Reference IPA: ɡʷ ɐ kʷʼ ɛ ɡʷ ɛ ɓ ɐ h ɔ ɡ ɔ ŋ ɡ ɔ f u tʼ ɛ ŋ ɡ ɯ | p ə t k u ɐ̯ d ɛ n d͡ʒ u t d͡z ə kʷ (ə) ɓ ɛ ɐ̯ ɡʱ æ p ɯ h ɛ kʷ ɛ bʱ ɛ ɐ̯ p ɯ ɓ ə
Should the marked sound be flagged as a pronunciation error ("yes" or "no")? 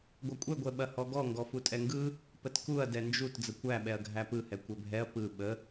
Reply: yes